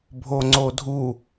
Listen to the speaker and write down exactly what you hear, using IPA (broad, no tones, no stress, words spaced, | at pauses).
bʱoŋ͡ǀodʱu